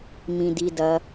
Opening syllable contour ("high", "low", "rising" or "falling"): low